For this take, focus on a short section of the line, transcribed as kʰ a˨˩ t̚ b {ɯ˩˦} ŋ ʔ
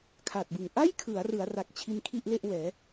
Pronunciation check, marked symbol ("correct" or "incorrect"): incorrect